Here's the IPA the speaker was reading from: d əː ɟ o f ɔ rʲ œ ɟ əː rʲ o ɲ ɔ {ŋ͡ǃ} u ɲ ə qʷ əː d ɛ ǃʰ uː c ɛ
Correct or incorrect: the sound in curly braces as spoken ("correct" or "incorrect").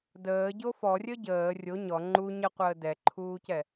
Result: correct